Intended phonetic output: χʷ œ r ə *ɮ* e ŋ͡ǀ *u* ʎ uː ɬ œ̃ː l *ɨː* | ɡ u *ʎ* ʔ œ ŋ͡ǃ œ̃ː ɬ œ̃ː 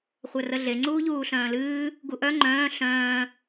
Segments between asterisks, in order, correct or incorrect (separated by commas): correct, incorrect, correct, incorrect